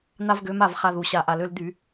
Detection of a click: absent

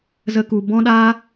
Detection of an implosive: present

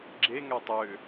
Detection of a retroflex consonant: absent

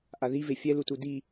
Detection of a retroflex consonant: absent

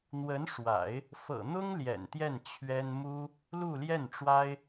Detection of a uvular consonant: absent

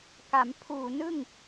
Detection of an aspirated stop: present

